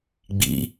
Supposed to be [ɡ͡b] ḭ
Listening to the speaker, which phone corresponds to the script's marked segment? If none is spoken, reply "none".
ɡ͡b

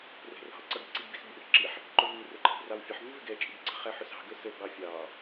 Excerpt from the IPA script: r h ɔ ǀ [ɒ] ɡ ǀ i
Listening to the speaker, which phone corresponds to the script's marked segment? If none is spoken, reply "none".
ʌ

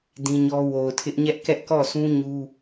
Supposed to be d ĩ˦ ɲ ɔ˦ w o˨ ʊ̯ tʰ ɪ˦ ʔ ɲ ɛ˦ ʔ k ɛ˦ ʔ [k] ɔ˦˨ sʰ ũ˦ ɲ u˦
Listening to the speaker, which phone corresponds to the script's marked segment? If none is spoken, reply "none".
k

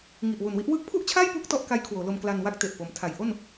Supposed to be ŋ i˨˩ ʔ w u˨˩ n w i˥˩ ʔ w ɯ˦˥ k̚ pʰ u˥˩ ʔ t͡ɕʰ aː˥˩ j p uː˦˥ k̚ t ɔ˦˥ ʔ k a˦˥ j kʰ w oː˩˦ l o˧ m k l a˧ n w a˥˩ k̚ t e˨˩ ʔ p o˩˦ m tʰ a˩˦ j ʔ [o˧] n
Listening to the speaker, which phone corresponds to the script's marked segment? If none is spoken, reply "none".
o˥˩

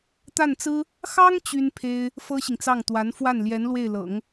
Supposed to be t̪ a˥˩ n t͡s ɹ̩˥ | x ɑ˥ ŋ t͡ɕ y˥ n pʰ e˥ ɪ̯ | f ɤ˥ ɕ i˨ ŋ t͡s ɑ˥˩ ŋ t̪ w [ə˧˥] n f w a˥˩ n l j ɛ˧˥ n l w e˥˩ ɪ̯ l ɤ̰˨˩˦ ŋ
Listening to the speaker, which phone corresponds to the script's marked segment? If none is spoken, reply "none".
a˧˥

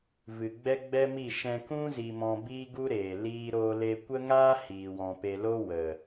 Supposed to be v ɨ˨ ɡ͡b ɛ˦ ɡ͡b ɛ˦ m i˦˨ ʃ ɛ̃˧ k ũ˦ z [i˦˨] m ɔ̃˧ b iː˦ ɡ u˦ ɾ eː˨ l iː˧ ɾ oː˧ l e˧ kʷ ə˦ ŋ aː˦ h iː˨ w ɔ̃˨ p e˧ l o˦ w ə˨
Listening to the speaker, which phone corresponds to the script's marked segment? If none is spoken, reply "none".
i˧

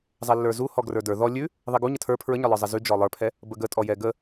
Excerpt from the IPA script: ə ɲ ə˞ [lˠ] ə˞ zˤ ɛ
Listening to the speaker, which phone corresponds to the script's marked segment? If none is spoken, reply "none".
lˠ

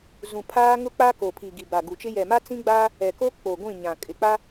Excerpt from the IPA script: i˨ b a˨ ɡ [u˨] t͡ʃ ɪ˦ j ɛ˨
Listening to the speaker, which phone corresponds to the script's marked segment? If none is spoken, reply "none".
u˨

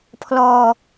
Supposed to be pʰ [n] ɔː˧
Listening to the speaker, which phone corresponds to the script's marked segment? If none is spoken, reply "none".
l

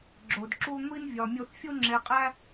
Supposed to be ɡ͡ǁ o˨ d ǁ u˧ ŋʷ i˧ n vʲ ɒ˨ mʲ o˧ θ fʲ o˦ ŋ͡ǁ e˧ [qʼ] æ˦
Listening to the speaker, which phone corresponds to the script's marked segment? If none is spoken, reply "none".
qʼ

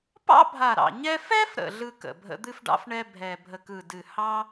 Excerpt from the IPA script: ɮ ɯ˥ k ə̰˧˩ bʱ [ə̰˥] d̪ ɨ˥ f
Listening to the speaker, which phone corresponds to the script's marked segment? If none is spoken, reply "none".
ə̰˥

